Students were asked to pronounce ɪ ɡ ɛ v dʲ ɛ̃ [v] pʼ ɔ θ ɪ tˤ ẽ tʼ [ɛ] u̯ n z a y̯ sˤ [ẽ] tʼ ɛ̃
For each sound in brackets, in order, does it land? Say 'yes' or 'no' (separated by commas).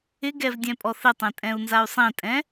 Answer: no, no, yes